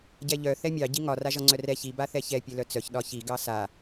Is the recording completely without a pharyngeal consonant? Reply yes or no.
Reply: yes